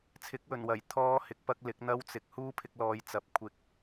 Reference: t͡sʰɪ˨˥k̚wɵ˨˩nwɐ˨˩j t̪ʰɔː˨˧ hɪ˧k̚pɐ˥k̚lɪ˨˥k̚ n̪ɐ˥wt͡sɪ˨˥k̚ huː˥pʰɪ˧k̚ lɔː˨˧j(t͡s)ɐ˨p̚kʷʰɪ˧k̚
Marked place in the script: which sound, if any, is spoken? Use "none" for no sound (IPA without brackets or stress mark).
t͡s